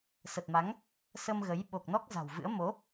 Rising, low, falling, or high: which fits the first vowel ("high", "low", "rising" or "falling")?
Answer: low